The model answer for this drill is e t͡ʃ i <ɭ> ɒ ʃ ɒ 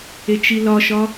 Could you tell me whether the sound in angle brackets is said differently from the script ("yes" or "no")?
yes